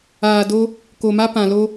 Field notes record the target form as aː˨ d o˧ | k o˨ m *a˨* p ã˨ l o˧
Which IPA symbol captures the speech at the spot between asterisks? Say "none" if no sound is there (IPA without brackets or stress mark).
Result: a˦